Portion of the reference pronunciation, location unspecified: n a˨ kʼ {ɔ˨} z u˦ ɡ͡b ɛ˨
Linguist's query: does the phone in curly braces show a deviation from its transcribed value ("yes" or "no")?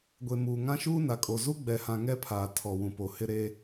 yes